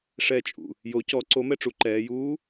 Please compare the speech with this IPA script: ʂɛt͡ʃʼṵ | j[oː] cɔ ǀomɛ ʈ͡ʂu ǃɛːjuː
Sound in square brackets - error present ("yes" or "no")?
yes